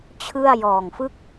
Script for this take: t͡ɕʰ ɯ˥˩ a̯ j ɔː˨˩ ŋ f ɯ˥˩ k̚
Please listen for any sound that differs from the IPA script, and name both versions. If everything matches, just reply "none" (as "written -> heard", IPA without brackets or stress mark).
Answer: none